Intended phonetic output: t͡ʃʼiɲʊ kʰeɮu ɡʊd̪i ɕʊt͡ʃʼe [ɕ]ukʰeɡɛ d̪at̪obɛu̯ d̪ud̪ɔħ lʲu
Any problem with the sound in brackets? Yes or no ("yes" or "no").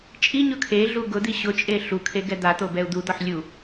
yes